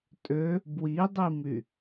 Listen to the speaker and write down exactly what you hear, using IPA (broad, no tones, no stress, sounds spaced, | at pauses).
tʼ ø | b w i dˤ i m y